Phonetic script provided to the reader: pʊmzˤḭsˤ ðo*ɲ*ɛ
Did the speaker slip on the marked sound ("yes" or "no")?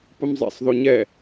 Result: no